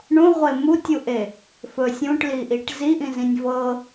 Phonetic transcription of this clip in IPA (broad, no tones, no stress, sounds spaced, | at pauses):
ɳ ũ ʁʷ e m u tʲ u ʔ e | f ɵ sʲ ũ ʈ l i ʔ i ʈ z i ʔ ĩ z ĩ nʲ v ɤ